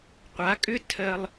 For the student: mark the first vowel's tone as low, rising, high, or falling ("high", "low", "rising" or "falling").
rising